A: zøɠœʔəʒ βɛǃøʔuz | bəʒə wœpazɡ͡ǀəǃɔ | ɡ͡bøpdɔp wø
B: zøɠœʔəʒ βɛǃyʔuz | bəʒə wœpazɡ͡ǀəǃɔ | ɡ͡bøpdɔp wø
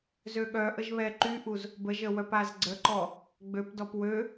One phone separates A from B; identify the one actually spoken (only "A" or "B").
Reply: B